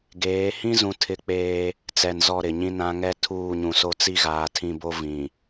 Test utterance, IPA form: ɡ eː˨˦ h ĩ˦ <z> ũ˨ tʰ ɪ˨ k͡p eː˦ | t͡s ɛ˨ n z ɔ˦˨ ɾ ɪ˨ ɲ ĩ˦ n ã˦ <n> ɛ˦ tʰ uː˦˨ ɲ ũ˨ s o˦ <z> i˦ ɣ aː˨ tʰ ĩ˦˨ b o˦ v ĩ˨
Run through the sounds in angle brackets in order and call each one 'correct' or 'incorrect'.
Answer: correct, incorrect, incorrect

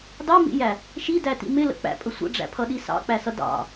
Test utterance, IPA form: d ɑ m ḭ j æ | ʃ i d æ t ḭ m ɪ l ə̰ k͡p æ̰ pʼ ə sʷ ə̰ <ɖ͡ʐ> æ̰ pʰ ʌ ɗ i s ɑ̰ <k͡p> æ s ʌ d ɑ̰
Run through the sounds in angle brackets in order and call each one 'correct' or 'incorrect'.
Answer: correct, correct

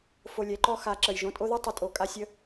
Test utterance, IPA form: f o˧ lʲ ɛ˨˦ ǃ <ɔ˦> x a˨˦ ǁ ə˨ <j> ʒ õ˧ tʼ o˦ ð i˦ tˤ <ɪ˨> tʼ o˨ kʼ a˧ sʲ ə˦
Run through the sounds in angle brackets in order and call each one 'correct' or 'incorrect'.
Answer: correct, correct, correct

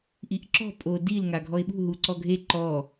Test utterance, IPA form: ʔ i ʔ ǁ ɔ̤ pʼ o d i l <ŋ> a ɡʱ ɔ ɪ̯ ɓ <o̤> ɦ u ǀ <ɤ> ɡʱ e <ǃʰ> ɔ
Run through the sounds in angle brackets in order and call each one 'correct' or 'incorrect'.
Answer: correct, incorrect, incorrect, incorrect

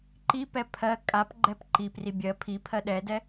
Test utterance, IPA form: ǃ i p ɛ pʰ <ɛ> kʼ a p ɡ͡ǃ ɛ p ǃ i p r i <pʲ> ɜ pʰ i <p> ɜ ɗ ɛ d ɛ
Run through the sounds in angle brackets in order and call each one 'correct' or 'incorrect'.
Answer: incorrect, incorrect, incorrect

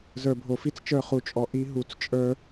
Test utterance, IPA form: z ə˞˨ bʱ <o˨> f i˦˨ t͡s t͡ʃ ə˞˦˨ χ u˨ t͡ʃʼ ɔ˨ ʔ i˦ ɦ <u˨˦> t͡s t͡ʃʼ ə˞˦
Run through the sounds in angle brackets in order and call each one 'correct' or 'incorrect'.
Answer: correct, correct

